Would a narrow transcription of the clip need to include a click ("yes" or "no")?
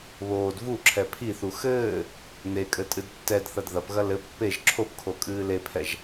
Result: yes